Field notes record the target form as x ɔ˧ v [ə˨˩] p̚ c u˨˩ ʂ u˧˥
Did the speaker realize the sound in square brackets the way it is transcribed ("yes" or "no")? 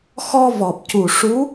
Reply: no